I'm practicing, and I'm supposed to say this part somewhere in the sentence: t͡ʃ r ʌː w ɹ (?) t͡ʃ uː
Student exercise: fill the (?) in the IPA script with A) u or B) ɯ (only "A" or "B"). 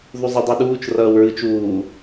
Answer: B